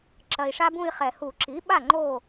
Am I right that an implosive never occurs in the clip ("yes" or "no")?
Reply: no